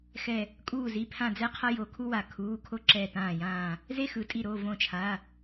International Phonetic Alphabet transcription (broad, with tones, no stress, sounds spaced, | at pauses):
x ɛ˧˩ | kʼ uː˧˩ z i˩˧˩ pʰ ã˧˩ d͡z ɛ˦ qʰ ʌ˦ j o˧˩ kʰ u˦ w a˧˩ kʰ uː˩˧˩ kʰ o˦ ǁ ɛ˧˩ t ãː˧˩ j ãː˧˩ | z e˦ x ɯ˩˧˩ tʼ i˧˩ ɾ o˩˧˩ v õ˧˩ t͡ʃʰ a˩˧˩